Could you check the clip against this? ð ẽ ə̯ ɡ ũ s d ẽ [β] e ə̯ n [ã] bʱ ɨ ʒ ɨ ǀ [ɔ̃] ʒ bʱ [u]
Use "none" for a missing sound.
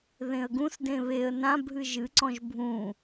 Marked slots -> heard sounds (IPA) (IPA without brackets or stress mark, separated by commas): β, ã, ɔ̃, ũ